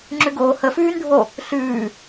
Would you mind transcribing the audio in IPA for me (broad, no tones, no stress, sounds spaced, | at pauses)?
ŋ͡ǁ ʉ ɡ oː h ə f ʉː n ɖʱ o | ɬ ʉː